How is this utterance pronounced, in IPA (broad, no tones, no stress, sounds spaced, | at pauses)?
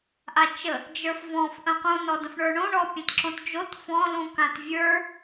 ʔ a t͡ʃ ə | d͡ʒ ə˞ f v ɔ̃ f ʔ ə̃ q ũ n ɔ d ə̃ f ɳ ə˞ ɳ õ ɳ ɔ pʲ ɛ̃ t ǁ õ t d͡ʒ o t f ɔ̃ l ũ k ã t vʲ ə˞